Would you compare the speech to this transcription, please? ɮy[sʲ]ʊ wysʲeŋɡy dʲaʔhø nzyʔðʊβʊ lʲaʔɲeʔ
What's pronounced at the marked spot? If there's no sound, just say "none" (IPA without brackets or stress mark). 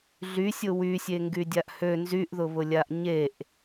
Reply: sʲ